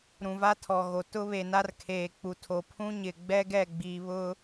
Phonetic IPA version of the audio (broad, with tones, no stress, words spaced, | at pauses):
ɾũ˨va˦tʰɔ˨ɣo˨ tʊ˦βe˨ na˦rkʰeː˨k͡pu˨tʰo˨ pʰũ˦ɲɪ˨ɡ͡bɛ˦ ɡɛ˦˨ɡ͡biː˨βʊ˦